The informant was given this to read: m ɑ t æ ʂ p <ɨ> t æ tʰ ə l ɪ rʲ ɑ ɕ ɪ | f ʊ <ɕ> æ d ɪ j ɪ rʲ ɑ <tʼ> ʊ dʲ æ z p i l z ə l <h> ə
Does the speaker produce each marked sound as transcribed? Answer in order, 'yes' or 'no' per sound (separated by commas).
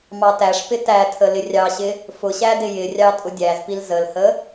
no, yes, yes, yes